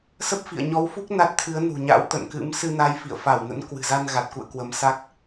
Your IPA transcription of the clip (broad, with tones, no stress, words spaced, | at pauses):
sə˦˥p̚fḭ˧˨ə̯ ɲɔ˨˦wfu˦˥k̚ na˦˥t̚t̪ʰɨ˨˦ə̯nṳ˨˩ɲa̰˧˥w t̪ə̰˧˨nkɨ̰˧˥m sɨ˧na˧j fḭ˧˨ə̯fa˧˩wnə̰˧˥n kwɨ̤˨˩za˧n ɣa˨˩t̚kṵ˧˨ə̯kwə˨˦msa˦˥k̚